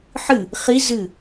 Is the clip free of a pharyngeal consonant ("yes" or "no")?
no